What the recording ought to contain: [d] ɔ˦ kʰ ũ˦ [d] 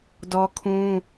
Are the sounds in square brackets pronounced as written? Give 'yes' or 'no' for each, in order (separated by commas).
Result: yes, no